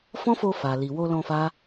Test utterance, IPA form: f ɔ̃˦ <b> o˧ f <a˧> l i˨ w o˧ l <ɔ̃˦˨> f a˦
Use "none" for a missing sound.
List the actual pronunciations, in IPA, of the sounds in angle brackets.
f, a˨, ɔ̃˧

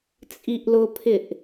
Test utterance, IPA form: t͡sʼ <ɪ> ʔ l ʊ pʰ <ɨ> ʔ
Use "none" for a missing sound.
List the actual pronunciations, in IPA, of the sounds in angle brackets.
i, ɪ

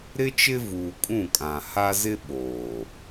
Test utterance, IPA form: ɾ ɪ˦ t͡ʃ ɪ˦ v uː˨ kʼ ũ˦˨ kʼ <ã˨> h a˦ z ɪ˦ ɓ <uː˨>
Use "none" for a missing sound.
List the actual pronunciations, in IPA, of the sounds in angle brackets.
ã˨, oː˨

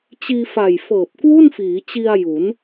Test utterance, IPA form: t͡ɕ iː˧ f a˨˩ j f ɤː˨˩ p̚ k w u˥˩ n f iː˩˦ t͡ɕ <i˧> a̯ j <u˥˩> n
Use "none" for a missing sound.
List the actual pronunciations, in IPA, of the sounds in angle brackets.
i˧, u˩˦

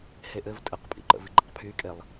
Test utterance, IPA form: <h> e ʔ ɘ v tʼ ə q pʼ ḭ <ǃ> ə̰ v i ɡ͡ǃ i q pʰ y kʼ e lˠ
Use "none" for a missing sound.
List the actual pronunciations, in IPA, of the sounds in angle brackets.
h, ǃ

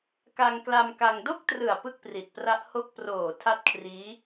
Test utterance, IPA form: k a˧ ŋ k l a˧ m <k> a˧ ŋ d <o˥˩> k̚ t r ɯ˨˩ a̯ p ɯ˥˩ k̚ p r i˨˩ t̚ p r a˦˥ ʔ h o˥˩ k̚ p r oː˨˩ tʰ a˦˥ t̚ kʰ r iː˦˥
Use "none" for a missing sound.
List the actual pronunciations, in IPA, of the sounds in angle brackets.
k, o˥˩

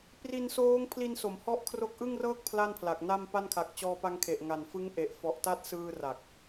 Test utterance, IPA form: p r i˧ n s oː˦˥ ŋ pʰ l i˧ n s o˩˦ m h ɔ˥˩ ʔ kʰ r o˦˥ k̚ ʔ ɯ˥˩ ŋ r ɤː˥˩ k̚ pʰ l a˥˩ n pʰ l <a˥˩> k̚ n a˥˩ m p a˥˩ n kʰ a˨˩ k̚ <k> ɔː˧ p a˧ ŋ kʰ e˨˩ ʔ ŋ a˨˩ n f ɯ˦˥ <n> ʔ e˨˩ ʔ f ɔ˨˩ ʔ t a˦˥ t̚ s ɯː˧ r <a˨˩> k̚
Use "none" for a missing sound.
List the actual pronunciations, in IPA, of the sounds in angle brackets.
a˨˩, t͡ɕ, ŋ, a˨˩

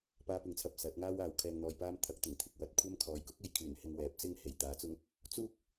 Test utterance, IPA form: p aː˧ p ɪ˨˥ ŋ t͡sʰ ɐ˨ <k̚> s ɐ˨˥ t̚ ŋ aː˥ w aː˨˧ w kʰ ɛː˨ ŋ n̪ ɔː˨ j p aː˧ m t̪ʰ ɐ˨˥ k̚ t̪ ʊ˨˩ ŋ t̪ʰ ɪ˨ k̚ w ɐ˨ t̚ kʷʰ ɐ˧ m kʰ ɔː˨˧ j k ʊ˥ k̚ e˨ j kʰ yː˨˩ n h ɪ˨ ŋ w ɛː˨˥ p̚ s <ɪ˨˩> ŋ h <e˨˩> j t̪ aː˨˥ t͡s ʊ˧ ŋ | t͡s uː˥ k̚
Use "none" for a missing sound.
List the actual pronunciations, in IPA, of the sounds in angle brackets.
p̚, ɪ˥, e˨˩

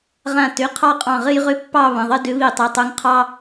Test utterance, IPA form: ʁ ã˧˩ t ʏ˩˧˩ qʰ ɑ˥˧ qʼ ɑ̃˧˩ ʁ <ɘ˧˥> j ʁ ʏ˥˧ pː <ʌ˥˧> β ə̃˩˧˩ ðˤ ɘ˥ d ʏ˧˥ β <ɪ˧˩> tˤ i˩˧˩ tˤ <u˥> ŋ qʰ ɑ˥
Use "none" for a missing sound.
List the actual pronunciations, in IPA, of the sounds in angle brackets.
ɘ˥, ɑ˥˧, i˧˩, u˧˥

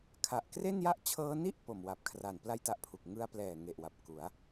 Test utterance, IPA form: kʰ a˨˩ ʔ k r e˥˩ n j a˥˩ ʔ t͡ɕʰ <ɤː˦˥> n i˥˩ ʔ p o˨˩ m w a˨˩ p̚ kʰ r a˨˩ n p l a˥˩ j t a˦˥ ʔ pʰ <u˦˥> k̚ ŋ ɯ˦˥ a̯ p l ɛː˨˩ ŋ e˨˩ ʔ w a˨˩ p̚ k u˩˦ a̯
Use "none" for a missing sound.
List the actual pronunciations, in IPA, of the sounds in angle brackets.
ɤː˦˥, u˨˩

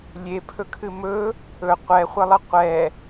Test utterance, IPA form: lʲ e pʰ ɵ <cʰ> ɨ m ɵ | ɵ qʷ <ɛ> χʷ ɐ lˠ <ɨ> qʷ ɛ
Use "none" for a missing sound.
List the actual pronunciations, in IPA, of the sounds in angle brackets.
kʰ, ɛ, ə

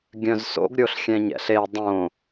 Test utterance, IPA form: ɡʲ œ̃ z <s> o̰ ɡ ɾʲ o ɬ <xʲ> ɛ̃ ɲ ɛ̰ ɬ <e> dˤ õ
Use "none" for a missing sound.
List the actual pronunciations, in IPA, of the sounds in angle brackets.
s, xʲ, e

